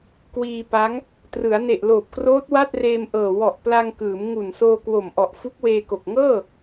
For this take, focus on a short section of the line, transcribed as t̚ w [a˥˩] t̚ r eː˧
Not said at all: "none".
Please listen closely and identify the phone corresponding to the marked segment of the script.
a˥˩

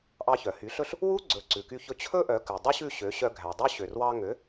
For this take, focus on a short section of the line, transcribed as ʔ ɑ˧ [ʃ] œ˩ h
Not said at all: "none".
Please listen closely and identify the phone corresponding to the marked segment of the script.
ç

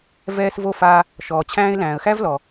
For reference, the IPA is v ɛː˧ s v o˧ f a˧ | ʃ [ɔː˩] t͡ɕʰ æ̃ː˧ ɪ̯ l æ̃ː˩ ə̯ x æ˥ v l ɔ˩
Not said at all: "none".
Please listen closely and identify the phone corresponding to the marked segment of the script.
ɔː˩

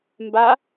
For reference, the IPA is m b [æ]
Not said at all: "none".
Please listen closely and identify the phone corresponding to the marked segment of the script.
a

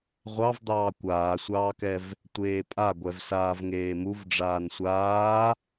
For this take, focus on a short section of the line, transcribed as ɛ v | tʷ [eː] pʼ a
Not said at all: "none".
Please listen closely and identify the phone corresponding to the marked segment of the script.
eː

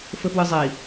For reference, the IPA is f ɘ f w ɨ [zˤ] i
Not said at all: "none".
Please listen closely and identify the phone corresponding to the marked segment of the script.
zˤ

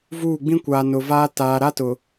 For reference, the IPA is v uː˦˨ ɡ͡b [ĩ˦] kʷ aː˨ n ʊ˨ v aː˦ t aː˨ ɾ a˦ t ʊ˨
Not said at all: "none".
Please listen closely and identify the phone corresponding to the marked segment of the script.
ĩ˦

